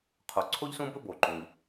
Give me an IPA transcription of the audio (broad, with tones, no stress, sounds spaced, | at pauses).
qʰ o˩ ǀʰ o˥ ʎ s ũ˥ b ɵ˥ b o˩ ǃ ũ˩ ʎ